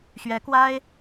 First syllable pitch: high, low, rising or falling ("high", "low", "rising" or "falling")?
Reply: rising